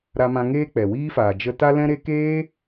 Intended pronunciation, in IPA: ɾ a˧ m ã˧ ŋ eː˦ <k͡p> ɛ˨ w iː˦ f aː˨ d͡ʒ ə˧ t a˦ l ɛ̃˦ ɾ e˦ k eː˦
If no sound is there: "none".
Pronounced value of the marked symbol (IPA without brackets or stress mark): k͡p